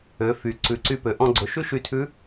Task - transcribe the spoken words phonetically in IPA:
ø˩˧ f y˩ ǀ ʉ˩˧ ǀ y˧ p ø˩˧ ʔ ɔ̃˧ ɡ͡ǀ ɵ˩˧ ʃ ʉ˥ ʃ y˧ tʰ ʉ˧˥

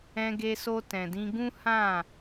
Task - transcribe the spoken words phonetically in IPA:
ɛ̃˧ ɡ e˧ s o˧ t ɛ̃˨ d ĩ˧ ɡ ũ˦ h ã˦˨

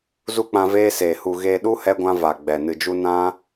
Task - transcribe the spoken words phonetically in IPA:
z u˦ k͡p ã˧ v eː˦ s eː˨ h u˨ ɣ eː˧ ɗ u˦ h ɛ˧ ɡʷ ã˧ v a˨ ɡ͡b ɛ˨ n ɨ˨ d͡ʒ u˧ n ã˦

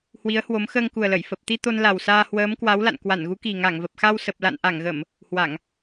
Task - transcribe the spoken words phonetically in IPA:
h w i˨˦ ə̯ h w o˨˦ m x əː˧ ŋ k u˨˩ ə̯ l ə˧˩ j f ə˨˩ p̚ t̪ i˧ t̪ o˧ n l a˨˩ w s aː˧ h w əː˨˦ m k w a˨˦ w l a̰˧˨ n k w a˧˩ n ɣ u˨˦ k i˨˩ ŋ a˧˩ ŋ v ə˨˩ p̚ x a˧ w s ə˨˩ p̚ l a̰˧˨ n ʔ a˧˩ ŋ ɣ ə˧˩˨ m | h w a˧˩˨ ŋ

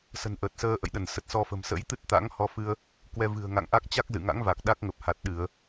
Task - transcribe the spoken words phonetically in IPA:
s ə̤˨˩ n ʔ əː˨˩ t̚ s əː˧ ʔ ə̰˧˨ j ɗ ə˧˩ n s ə˨˩ t̚ s ɔ˧ f ə̤˨˩ m s ə̰˧˥ j t̪ ɨ˦˥ t̚ t̪ a̰˧˥ ŋ h ɔ˨˦ f ɨ˧ ə̯ | k w ɛ˧ v ɨ̤˨˩ ə̯ ŋ a̰˧˨ ŋ ʔ a˦˥ k̚ t͡ɕ a˦˥ k̚ z ɨ̰˧˨ ŋ a̰˧˥ ŋ v a˨˩ k̚ ɗ a˦˥ k̚ ŋ ə˨˩ p̚ h a˨˩ t̚ ɗ ɨ˧˩˨ ə̯

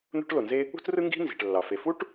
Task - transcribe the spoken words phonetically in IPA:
n̪ ṳ˥ ʈ l o˩ n z e˥ | ṳ˥ t r ɯ˥ ŋ ɡ i̤˥ n z i̤˩ ʈ lː ɑ˩ f e˩ f u˥ ʈ

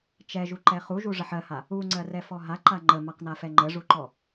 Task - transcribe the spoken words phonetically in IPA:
t͡ʃ ɛ ʒ u ǃ ɛ χ u ʒ u ʐ ə ħ ɜ h a | u ŋ͡ǀ ɜ r ɛ f ɔ ɦ a ǃ a ŋ͡ǃ ə m a q n a f ɛ ŋ͡ǃ ə ʐ u ǃ ɔ

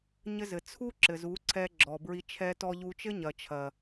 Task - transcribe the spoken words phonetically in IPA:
ɲ ɘ˧ z ɘ˨ t͡sʰ u˦ ǁ ɘ˨ z u˨˦ ǀʰ ɛ˧ ɡ͡ǁ ɔ˨ b ɹ i˧ t͡ʃʰ ɛ˦ t ɔ˦ ʎ u˧ t͡ʃ ɘ˦ ɲ ɐ˨ t͡ʃʰ ɐ˨

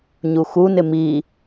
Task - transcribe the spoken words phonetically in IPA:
ɲ u x u n ɪ m i

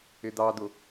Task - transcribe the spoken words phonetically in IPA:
ɪ d̪ ɑ d̪ ʊ

